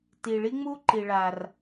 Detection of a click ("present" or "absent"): present